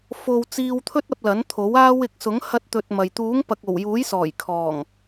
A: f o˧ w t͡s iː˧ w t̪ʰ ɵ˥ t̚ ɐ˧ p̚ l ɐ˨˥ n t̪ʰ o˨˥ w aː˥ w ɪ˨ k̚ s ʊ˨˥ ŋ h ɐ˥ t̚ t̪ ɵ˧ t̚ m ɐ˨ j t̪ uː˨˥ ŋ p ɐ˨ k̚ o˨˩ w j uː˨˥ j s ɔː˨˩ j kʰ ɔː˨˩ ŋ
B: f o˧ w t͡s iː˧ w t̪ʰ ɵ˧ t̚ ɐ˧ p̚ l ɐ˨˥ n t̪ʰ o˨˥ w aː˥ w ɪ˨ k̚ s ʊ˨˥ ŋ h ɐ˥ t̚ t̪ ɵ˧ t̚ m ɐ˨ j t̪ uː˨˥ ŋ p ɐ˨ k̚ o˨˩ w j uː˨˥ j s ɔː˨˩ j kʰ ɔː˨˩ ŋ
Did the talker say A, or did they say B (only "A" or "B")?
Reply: A